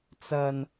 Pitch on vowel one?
low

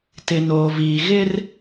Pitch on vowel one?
low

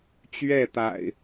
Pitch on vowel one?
falling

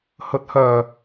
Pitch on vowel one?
rising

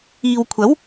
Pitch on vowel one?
low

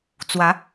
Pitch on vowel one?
rising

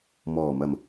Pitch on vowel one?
low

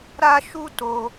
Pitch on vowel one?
high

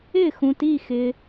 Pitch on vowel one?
falling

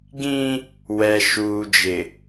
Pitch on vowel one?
high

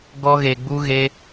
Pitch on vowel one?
high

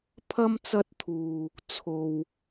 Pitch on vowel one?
high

